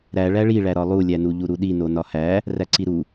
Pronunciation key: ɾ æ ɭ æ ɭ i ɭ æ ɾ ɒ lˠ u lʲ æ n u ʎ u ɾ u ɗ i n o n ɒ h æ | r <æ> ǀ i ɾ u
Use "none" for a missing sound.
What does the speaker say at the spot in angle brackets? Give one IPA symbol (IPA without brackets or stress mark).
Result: æ